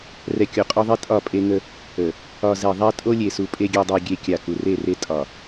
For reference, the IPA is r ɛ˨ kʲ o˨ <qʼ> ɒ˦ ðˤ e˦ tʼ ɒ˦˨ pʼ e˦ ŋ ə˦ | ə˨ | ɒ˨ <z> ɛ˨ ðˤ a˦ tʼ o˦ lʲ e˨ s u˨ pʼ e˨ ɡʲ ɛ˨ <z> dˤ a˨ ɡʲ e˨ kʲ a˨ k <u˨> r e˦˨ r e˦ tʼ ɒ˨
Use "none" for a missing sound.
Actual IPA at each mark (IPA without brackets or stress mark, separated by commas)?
qʼ, z, none, u˨